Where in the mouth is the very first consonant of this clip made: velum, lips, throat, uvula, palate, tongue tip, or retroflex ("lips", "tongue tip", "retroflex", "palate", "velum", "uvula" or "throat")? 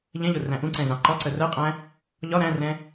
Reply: palate